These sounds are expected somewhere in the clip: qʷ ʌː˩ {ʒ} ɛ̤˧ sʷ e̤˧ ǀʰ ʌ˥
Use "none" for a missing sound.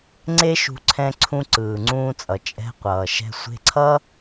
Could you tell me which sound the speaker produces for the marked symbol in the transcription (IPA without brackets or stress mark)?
ʃ